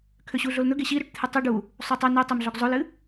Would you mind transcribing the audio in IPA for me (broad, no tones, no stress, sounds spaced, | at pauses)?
kʰ ø ɕ u ɮ o l n̪ ɵ ɡ e ɕ i ɾ ø ʈ t̪ʰ ɨ tˤ u ɖ u | sˤ o tˤ ø n ø tˤ ɵ m ɮ o ɡ zˤ o l ɨ